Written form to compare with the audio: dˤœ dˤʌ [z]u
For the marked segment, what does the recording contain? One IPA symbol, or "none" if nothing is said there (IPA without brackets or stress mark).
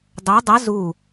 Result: z